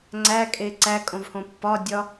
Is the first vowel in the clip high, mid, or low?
low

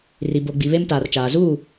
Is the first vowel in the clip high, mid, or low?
high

